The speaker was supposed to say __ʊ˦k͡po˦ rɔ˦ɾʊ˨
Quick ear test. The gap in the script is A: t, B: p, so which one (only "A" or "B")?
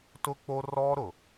A